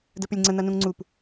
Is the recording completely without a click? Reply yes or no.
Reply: no